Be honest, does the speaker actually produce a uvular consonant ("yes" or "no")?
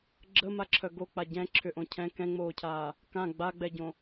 no